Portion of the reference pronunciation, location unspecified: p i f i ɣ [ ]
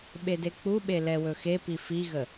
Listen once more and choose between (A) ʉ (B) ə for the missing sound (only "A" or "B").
B